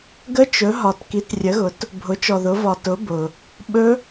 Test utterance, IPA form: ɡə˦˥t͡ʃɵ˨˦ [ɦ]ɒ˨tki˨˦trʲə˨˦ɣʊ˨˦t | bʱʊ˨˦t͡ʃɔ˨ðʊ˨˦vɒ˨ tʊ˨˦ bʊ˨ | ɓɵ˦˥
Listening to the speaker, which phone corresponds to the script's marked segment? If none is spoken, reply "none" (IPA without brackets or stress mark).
ɦ